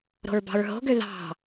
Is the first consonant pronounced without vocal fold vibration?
no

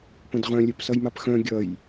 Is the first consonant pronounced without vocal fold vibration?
yes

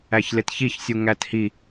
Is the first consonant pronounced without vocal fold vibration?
yes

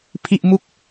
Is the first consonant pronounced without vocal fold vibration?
yes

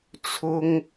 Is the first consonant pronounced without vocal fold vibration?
yes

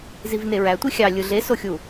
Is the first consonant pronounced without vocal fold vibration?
no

